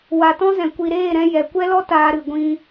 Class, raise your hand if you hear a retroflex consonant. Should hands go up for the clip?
no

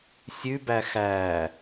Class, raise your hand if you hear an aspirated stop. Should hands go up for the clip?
no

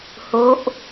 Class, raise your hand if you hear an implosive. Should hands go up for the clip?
no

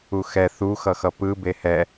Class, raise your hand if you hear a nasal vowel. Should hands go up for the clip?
no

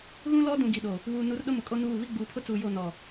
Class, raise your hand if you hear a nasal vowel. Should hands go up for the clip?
yes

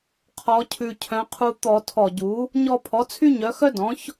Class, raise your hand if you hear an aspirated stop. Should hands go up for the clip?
yes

